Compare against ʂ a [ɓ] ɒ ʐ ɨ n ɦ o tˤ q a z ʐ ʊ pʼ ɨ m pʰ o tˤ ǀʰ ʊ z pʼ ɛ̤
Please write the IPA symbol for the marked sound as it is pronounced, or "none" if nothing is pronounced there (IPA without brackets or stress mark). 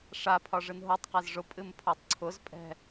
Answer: pʰ